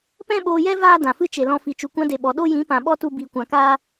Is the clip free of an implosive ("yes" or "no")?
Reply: no